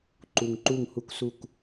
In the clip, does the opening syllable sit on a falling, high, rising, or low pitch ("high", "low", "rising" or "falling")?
low